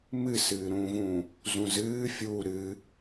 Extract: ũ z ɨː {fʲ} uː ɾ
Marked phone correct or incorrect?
correct